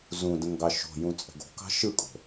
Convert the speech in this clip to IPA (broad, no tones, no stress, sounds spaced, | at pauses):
z ũ d ə̃ ŋ ɡ ɑ ʃ o̤ j ũ t͡sʼ ə̤ ɡ o̤ k ɑ̤ ʃ ɯ kʼ o̤